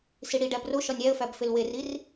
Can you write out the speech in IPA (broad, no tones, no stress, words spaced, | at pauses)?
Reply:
siɽiɖæb roʃɒnʲ æə̯fæb felwerir